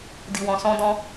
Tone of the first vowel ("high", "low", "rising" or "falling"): low